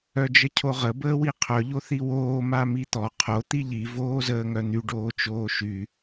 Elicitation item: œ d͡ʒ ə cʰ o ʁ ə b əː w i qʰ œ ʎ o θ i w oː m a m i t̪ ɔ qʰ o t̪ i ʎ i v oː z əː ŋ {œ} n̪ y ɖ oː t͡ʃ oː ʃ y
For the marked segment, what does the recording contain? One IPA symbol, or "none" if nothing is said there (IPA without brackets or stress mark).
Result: œ